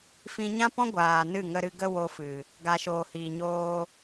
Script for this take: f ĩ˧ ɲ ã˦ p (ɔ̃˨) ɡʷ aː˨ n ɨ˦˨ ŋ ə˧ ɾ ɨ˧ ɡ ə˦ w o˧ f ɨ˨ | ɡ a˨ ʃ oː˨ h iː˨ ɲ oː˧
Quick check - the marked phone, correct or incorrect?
incorrect: ɔ̃˦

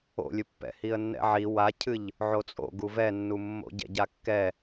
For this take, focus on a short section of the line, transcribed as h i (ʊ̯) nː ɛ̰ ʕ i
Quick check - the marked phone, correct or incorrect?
incorrect: ə̯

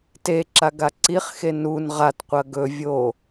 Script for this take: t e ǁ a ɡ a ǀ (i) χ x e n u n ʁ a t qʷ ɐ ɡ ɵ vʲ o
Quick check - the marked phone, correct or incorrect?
correct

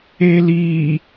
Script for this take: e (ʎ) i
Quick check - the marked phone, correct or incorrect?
incorrect: l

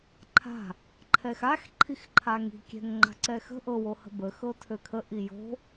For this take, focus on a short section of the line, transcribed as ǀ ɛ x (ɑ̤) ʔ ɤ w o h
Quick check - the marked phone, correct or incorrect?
incorrect: ə̤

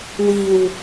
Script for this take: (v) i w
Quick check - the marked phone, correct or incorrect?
incorrect: w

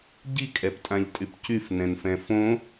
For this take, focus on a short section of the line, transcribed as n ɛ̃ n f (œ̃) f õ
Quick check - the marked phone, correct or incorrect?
incorrect: ɛ̃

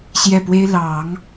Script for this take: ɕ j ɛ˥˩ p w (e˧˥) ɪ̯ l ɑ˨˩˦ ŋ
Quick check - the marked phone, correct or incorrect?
incorrect: e˥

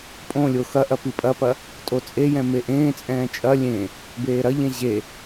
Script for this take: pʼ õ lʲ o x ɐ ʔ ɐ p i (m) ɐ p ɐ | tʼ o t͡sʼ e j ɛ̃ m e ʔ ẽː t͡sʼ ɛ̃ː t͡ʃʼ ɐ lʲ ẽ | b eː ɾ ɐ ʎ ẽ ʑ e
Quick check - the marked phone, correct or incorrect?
incorrect: pʼ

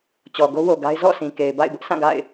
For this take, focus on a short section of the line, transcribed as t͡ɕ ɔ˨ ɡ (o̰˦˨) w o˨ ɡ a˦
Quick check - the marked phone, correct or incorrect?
incorrect: o˦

